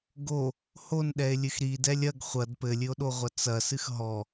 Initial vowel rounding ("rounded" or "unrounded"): rounded